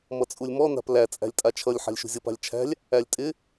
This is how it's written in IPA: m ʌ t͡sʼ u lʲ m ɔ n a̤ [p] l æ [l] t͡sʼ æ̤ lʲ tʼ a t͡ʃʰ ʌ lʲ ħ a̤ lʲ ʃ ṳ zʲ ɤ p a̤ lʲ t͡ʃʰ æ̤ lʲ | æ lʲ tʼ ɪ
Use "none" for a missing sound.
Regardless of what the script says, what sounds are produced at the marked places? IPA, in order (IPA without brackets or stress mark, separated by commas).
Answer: p, none